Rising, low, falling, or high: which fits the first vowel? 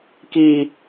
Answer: low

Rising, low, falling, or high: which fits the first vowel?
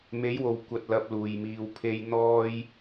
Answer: rising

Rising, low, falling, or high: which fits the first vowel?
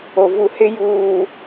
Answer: low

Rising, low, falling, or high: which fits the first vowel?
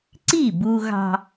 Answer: falling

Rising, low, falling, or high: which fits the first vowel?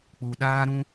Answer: low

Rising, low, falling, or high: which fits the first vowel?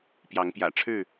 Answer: rising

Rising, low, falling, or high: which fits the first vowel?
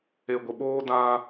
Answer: low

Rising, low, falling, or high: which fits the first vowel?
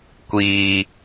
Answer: high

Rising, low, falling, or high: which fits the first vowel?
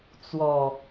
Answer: low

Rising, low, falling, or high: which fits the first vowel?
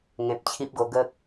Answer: low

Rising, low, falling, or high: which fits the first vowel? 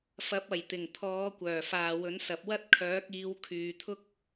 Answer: rising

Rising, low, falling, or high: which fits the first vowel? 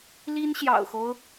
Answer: high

